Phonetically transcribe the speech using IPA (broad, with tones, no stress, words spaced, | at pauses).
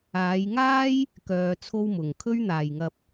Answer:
aː˨˧jŋaː˥j | kœː˧t͡sʰo˥wmʊ˨ŋ kʰɵ˥ɥn̪aː˨jŋɐ˧p̚